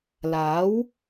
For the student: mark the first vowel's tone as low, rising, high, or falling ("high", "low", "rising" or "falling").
rising